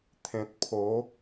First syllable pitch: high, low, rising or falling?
low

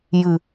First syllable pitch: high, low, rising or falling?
low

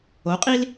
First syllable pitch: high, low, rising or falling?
rising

